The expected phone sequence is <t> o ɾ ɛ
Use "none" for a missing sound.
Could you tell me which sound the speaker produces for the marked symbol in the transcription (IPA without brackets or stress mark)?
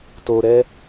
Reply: t